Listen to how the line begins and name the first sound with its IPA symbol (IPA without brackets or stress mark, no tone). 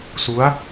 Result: s